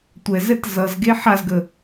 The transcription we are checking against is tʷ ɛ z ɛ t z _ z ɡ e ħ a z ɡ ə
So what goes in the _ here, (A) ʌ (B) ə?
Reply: A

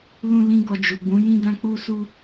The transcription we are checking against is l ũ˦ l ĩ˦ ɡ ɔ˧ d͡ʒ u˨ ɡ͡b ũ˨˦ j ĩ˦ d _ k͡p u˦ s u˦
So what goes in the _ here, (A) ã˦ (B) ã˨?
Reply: A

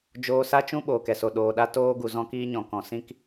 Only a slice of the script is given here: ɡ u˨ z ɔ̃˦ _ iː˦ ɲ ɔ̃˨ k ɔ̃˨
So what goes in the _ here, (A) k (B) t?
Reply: A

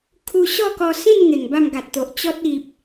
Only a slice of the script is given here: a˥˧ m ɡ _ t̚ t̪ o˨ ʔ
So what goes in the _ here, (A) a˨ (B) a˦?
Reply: A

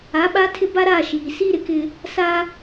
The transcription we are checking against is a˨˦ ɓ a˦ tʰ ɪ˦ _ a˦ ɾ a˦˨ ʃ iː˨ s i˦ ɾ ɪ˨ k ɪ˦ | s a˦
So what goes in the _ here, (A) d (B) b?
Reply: B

